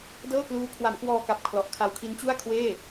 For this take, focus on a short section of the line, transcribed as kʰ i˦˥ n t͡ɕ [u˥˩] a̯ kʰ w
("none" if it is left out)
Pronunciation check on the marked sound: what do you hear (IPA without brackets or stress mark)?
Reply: u˥˩